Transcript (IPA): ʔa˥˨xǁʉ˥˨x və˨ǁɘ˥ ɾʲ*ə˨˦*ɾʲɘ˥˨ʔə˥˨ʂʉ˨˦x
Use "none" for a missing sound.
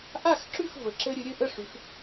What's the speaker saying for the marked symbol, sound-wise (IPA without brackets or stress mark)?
ɨ˨˦